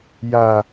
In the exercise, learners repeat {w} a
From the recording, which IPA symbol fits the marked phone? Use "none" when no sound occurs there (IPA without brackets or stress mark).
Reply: j